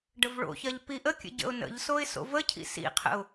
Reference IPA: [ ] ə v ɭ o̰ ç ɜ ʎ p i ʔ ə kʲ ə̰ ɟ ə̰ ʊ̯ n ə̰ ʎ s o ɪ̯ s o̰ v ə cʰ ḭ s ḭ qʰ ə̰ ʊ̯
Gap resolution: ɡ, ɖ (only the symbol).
ɖ